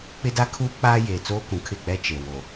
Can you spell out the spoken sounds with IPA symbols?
k͡pɪ˦da˦kʰuː˦k͡paː˦ jeː˨t͡soː˦kũ˨ kʰɪ˦˨k͡pɛ˦t͡ʃe˨ wo˨

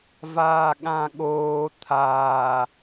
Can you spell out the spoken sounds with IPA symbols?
vaːɠãɠoː t̪ʰaː

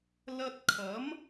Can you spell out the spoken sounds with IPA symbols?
lɐ˧t̚kʰɐ˨˥m

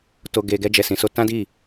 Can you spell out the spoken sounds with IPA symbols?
to˧ɡe˧ ɡɛ˧d͡ʒɛ˨sĩ˨so˧ tã˦di˦˨

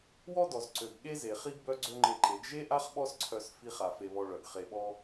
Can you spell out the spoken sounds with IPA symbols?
wɔ˦dɔ˨z ǀø˨ɡɠe˦ze˨χi˦ɡ bœ˦ɡ͡ǀø˦ŋ͡ǃe˧ǃe˨˦ɡ ʒe˦ʔa˦χ ɓɔ˦sǀʰœ˧s fi˧χa˨ fe˧βɔ˧ɭœ˨ɡ χe˨ɓɔ˧

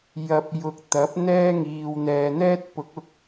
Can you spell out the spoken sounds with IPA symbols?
jɐ˨p̚jʊ˨k̚ t̪ɐ˨˥p̚n̪ɛː˥ŋiː˨w n̪ɛː˨n̪ɛː˥t̚pʊ˨˥k̚ ʊ˧k̚

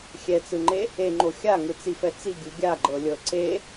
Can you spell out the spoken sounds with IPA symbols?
xʲɛt͡sɯŋ͡ǃe | eŋ͡ǃo xʲaŋɯt͡sifɛ t͡siɡʲu ɡʲaɡ͡ǃɤlʲɤ ǀe

